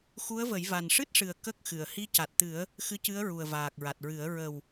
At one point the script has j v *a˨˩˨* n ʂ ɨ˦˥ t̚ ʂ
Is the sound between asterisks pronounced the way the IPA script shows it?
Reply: no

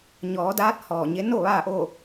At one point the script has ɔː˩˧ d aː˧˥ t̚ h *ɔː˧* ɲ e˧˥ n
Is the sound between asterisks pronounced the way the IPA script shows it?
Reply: no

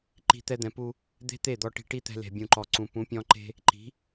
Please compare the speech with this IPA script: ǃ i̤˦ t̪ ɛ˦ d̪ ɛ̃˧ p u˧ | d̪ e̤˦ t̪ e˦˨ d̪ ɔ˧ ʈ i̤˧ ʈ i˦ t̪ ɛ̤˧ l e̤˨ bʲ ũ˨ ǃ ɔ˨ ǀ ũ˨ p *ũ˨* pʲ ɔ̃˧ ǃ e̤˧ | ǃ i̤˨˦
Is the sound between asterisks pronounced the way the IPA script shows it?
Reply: no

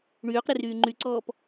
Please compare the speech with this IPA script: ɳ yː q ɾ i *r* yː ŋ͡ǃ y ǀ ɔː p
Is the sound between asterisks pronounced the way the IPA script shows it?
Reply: yes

